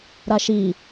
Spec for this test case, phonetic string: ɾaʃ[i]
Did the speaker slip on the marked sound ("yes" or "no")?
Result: no